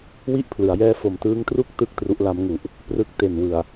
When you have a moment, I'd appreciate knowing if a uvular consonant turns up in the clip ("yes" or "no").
no